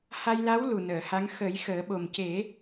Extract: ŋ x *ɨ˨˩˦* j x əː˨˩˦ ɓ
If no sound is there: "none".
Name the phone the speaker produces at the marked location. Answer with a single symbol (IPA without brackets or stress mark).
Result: ə˨˩˦